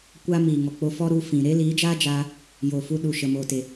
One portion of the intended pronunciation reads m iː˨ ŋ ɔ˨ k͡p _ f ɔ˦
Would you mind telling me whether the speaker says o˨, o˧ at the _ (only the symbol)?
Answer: o˧